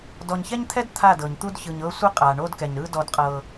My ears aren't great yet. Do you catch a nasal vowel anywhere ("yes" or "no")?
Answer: no